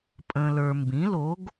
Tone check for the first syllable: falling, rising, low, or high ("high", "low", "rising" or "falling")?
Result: low